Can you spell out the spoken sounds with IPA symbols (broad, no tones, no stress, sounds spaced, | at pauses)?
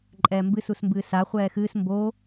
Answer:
ǃʼ ɛː m b ɨ s u s m b ɨː s a χʷ ɛː x ɨː s m b o